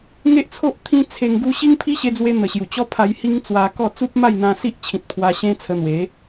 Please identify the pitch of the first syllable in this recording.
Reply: high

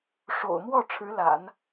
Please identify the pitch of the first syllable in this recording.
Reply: low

